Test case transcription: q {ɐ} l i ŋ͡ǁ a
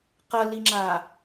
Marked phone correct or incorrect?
correct